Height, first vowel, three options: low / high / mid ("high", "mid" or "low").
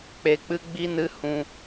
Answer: mid